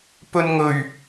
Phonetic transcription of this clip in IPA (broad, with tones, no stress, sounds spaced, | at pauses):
p ɵ˧ n ŋ ɵ˨˩ ɥ